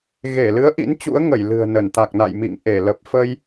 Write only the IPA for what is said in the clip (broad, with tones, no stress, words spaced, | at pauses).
ɣe˧˩lɨ˨˦ə̯ ʔḭ˧˥nt͡ɕṵ˧˥ə̯ ŋə˧˩jlɨ̤˨˩ə̯nə˧˩n t̪a˨˩k̚na̰˧˨jmḭ˧˨ŋ ʔe˧˩ lə˨˩p̚fə˧j